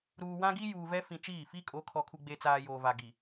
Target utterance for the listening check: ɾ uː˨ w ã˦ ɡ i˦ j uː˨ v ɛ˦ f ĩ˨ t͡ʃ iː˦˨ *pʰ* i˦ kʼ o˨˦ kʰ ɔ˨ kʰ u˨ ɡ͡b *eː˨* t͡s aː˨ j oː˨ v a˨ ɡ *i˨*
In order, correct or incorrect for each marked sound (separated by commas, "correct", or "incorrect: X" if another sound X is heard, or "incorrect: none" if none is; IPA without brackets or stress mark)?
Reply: incorrect: f, incorrect: e˨, correct